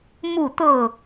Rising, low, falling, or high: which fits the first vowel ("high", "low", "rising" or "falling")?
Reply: falling